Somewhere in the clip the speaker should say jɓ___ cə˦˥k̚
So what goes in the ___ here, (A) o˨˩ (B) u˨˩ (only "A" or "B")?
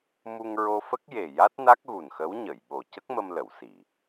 A